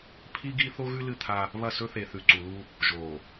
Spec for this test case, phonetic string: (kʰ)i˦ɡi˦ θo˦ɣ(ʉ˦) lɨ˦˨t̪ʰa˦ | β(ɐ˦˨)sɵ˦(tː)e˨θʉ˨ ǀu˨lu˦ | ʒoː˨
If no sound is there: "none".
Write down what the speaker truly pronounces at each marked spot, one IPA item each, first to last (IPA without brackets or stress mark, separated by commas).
pʰ, ʉ˦, ɐ˦˨, θ